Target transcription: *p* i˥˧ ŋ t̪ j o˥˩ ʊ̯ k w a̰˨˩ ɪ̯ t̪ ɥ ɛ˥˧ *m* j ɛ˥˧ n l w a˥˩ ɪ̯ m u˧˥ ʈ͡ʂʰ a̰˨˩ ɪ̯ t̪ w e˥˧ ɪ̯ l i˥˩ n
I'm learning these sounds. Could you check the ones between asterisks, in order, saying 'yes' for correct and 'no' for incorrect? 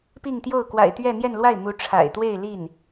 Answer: yes, no

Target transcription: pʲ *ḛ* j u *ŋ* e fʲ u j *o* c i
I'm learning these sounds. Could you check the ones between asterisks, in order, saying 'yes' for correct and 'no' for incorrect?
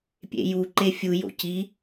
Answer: yes, no, no

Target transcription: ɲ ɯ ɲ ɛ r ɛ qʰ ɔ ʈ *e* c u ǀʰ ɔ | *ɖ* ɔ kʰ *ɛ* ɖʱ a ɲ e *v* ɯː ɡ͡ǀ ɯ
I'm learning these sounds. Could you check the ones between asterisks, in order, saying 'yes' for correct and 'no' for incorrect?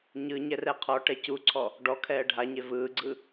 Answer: no, yes, no, yes

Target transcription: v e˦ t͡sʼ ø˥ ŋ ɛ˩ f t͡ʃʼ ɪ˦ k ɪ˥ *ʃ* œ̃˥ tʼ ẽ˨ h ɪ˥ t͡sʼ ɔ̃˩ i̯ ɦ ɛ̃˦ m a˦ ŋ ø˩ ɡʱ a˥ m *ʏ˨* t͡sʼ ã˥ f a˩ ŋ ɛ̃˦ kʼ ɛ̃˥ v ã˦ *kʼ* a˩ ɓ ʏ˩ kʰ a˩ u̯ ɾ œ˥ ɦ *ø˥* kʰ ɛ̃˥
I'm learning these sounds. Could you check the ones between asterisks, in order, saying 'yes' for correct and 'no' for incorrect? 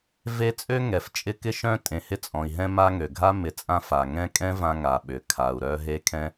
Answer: yes, no, no, no

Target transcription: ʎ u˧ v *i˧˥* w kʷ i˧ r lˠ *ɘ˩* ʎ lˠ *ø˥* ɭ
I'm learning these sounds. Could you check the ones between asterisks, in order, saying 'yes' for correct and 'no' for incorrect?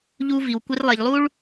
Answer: no, no, no

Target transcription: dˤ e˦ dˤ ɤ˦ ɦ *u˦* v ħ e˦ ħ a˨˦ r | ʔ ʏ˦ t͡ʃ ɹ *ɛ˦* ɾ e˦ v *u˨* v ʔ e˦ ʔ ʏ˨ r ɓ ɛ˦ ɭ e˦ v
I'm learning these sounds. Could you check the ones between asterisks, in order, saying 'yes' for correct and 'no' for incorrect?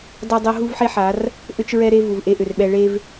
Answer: yes, yes, yes

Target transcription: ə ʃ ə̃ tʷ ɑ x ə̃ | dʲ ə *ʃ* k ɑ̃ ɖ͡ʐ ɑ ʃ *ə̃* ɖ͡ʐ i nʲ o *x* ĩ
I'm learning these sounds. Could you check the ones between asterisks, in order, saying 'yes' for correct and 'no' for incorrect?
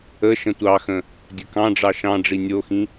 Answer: no, no, yes

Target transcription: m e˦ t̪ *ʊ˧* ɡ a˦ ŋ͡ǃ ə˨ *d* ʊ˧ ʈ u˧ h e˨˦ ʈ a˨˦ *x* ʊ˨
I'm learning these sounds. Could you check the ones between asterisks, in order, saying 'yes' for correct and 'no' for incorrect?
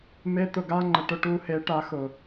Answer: yes, no, yes

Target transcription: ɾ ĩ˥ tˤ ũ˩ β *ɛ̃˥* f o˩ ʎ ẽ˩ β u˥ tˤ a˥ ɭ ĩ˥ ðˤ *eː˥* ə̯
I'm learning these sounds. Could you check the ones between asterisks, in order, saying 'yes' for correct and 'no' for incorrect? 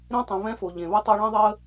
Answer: yes, no

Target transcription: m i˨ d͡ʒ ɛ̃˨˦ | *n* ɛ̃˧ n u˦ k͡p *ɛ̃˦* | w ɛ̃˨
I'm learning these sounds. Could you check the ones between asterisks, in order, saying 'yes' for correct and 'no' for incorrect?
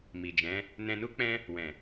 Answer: yes, no

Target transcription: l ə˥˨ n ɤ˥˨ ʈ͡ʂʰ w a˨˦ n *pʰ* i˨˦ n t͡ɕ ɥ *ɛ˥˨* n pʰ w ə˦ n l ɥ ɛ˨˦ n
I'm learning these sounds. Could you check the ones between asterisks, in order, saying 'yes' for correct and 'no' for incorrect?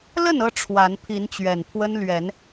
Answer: yes, no

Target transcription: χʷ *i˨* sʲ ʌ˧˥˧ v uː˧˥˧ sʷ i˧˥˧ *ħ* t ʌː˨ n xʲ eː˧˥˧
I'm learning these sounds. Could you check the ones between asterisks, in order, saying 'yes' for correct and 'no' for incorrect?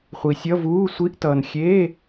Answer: yes, no

